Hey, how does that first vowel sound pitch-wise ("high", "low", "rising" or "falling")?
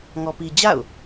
low